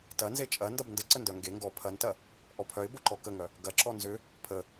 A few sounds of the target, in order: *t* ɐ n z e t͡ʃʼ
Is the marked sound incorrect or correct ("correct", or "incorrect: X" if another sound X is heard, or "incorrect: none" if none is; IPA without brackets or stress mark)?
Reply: correct